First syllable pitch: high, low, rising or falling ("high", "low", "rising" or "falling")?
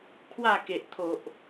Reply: falling